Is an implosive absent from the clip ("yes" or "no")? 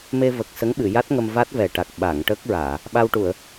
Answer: no